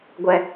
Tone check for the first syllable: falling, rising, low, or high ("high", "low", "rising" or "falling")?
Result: high